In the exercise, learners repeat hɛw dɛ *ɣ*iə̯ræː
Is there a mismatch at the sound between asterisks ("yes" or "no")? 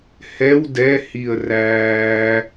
yes